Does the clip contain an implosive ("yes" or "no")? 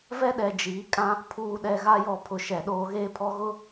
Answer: yes